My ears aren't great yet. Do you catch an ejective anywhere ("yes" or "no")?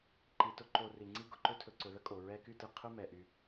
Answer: yes